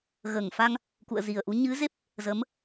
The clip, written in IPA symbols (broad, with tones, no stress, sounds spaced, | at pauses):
ɣ əː˧˩ ŋ f a˧ ŋ | k ṵ˧˨ ə̯ z i˨˩ ə̯ ʔ u˨˦ ɲ ɨ˨˦ z e˦˥ p̚ | z ə˨˦ m